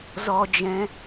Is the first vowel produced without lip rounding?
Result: no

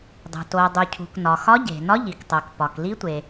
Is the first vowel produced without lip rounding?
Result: no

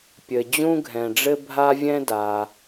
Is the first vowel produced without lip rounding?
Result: yes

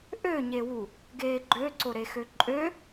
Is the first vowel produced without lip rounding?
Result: no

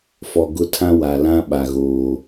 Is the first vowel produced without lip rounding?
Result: no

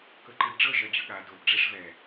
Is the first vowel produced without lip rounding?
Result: yes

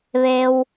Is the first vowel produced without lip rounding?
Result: yes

